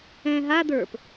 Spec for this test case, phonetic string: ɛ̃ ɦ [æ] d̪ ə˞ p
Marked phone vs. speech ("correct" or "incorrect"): incorrect